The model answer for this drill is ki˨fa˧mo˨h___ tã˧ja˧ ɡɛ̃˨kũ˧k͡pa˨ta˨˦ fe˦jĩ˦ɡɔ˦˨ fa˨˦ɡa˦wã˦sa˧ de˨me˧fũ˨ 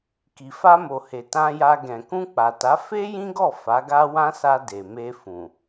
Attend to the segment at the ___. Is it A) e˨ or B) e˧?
A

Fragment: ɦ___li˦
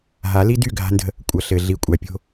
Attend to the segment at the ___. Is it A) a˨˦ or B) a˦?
A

